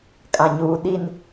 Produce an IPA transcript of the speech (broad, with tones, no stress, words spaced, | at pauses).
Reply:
kʼã˨ɲuː˨ɗi˦˨n